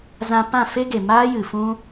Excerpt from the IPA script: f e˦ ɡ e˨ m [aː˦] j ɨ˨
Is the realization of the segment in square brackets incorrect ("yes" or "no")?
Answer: no